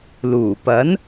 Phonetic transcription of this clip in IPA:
l uː˨˩ p ɐ˨˥ n

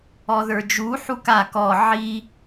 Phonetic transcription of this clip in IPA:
ɔ ð ə˞ d͡ʒ u ħ u k a k ɔ ʕ i

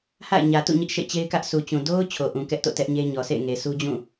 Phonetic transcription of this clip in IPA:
h a̰˦˨ ɪ̯ ɲ ä˨ t ṵ˦˨ ɲ ɪ˦ ʔ ʃ ḛ˦˨ t͡ɕ e˦ ɪ̯ k ä˦ ʔ s u˨ t͡ɕ ũ˨ d o˦ ʊ̯ t͡ɕʰ o˨ ʔ ũ˨ k ɛ˦ ʔ t o̰˦˨ t ɛ˦ ʔ ɲ e˦ ɲ ɔ˨ s ḛ˦˨ ɪ̯ ŋ e˨ s u˦ d͡ʑ ũ˦˨

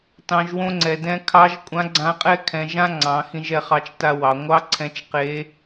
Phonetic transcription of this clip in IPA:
t ɑ̃˩˧ ʒ w õ˧ ŋ͡ǀ ɛ˩ d ɛ̃˧ kʰ ɑ˧˥ ʒ kʷʼ ã˧˥ ɡ͡ǀ ã˧˥ qʼ ɛ˥ kʰ ɛ̃˩˧ ʒ ã˥ ŋ͡ǀ ɑ̃˩˧ x ĩ˧ ʒ ɛ˧ χ ɑ˧ t͡ʃ t a˧ w ɑ˩˧ ŋʷ ɑ˥ ǀʰ ɛ̃˧˥ t͡ʃ q e˧˥

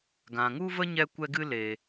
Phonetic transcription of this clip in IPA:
ɡ ã˨ ŋ u˦ v ə˦ ɲ ɛ˦ kʷ ɛ˦ ɡ ɨ˦ l e˨

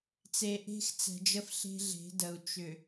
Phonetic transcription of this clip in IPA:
t͡s e˨ ʔ e̤˦ x t͡s ɛ̤˨ d͡ʒ ə˦ f ɬ e̤˦ ɮ e̤˨˦ d ə˨ u̯ t͡ʃ ʏ˨

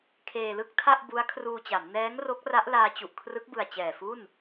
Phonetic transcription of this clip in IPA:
kʰ eː˧ l ɯ˥˩ k̚ tʰ a˥˩ ʔ b u˦˥ a̯ kʰ r uː˧ t͡ɕ a˩˦ m n ɛː˦˥ ŋ r o˦˥ k̚ r a˦˥ ʔ l aː˧ t͡ɕ u˨˩ ʔ kʰ r ɯ˦˥ k̚ b ɯ˨˩ a̯ t͡ɕ ɛː˨˩ f u˥˩ n

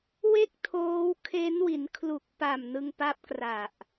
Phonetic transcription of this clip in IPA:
w e˥˩ k̚ tʰ oː˦˥ w kʰ e˦˥ n w i˩˦ n kʰ l u˨˩ k̚ p a˨˩ m n ɯ˧ ŋ p a˦˥ p̚ k r a˨˩ ʔ

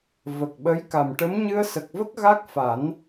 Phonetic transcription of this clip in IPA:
v ə˨˩ k̚ ɓ ə˧˥ j k a˨˩ m ʈ ə˧˥ m ɲ ɨ˧ ə̯ s ə˨˩ k̚ v ə˦˥ k̚ ɣ a˦˥ k̚ f a˨˩˦ n

